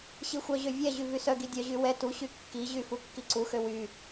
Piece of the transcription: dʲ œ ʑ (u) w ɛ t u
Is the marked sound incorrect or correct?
incorrect